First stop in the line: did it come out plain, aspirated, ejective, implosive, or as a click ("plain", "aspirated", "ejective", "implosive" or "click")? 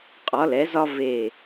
ejective